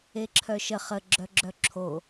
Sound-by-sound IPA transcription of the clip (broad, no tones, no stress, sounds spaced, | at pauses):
e ǁʰ œ ʃ ə χ ə ɡ͡ǁ œ ɡ͡ǁ œ ǁʰ o